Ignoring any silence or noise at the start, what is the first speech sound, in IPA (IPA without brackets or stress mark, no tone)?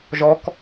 ʒ